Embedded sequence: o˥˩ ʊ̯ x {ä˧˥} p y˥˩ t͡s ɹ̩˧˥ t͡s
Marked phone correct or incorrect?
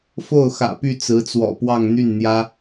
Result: incorrect